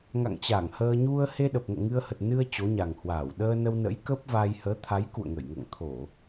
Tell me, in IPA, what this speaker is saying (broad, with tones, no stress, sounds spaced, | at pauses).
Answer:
ŋ a̰˧˨ ŋ t͡ɕ a˧˩ ŋ h əː˧ ɲ u˧ ə̯ h e˧ ɗ ə˨˩ p̚ ŋ o̰˧˨ ŋ ɨ˧ ə̯ h ə˨˩ t̚ n ɨ˧ ə̯ t͡ɕ o˨˦ ɲ a˨˩ ŋ h w aː˧˩ w ɗ əː˧ n ə˧ w n ə̰˧˥ j k ə˦˥ p̚ v a˧ j h əː˨˦ t̪ʰ a˨˦ j k ṵ˧˨ ə̯ ŋ ə˧˩ j ŋ o̰˧˨ ŋ t̪ʰ o˧˩˨